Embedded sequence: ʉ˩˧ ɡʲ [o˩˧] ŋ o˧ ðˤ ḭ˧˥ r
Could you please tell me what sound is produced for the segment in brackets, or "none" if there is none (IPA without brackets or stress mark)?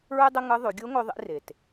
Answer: o˧˥